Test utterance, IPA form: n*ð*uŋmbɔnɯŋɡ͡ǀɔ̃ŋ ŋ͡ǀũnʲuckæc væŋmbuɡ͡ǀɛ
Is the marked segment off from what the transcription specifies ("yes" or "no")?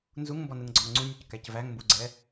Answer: yes